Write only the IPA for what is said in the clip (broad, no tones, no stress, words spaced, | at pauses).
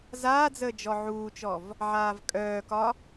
zaːd͡zəː d͡ʒɔʕuːt͡ʃɔv | ʕaːvkʼœːkɒ